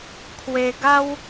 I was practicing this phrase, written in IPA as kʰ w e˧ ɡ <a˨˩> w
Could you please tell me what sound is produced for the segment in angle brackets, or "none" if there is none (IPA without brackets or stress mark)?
a˦